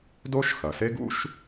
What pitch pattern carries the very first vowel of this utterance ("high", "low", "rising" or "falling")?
high